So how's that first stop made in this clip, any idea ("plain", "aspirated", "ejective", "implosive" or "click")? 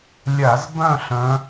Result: plain